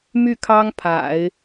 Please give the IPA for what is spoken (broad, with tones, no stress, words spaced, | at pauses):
my˥˩kʰɑ˥ŋ pʰa̰˨˩˦ɪ̯